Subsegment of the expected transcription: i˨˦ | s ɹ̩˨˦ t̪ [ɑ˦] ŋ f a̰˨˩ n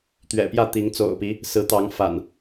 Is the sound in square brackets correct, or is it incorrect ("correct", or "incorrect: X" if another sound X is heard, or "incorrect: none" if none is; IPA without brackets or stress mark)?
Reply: incorrect: ɑ˨˦